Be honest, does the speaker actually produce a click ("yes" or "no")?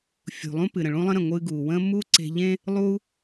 yes